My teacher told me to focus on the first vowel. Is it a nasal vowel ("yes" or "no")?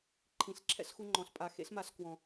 yes